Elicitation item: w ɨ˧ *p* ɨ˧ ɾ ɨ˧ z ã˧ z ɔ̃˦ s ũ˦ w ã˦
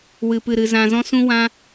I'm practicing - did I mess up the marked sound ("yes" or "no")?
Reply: no